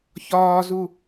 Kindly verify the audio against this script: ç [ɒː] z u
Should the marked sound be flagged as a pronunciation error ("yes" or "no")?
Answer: no